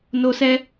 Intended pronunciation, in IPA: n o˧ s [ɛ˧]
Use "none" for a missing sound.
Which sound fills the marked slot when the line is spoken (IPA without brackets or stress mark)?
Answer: ɛ˧